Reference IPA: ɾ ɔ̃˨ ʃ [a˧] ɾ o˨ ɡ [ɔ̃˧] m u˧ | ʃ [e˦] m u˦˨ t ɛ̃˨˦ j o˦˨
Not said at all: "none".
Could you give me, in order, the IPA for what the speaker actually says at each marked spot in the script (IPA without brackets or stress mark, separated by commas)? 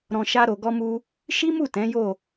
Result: a˧, ɔ˧, i˦